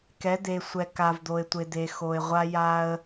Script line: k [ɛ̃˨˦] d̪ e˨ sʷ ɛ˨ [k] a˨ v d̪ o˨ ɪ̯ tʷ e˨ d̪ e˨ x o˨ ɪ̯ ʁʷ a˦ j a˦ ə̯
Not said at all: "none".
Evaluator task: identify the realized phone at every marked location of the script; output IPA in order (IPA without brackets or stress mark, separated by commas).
ɛ˨˦, k